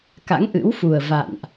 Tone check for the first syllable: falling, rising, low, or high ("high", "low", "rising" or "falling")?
rising